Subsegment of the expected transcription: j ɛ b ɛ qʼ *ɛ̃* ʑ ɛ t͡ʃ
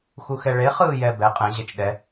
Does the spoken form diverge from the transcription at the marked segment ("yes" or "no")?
no